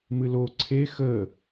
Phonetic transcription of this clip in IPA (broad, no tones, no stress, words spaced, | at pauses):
mɨlo ǀʰe xə